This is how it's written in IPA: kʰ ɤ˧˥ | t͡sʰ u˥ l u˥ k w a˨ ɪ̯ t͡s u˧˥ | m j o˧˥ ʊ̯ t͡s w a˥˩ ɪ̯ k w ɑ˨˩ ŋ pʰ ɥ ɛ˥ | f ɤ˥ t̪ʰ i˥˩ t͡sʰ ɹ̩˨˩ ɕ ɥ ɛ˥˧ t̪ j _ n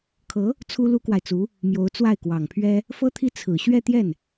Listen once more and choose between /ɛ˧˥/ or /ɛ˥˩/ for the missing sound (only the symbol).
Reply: ɛ˥˩